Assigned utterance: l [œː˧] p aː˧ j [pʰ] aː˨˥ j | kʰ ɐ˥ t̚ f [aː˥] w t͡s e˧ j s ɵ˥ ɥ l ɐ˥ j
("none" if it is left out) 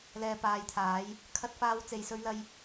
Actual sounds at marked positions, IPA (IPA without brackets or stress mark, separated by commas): ɛː˧, t̪ʰ, aː˥